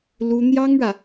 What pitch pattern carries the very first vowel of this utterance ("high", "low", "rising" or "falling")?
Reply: high